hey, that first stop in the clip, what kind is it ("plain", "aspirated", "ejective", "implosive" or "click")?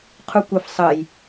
aspirated